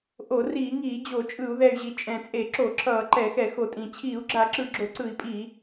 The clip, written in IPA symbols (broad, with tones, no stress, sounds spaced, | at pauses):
ʔ o˧˩˧ r iː˧˩˧ ŋ iː˧˩˧ d͡ʑ o˧˩˧ t͡ʃʼ ɯ˧˩˧ u̯ ð ɛ˨˩ y̯ ʑ i˨˩ t͡ʃʼ ɛ̃˨˩ t͡sʼ e˧˩˧ ǁ o˧˩˧ ǁʰ ʌː˧˩˧ ǃ ɛ˧˩˧ x ɛ˧˩˧ x o˨˩ tʼ ĩ˨˩ t͡ɕʰ iː˧˩˧ u̯ ɡ͡ǁ a˧˩˧ ǁ ɯ˨˩ ɡ͡ǁ o˧˩˧ ǀ ɯ˧˩˧ i̯ pʼ iː˧˩˧